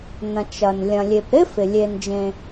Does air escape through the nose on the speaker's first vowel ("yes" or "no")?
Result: yes